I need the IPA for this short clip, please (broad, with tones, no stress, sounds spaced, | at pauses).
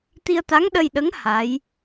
t̪ i˧ ə̯ t̪ a˧˥ ŋ ɗ ə˧ j ɗ ə˧˥ ŋ h a˧˥ j